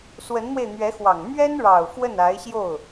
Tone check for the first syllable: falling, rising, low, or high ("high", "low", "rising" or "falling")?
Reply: rising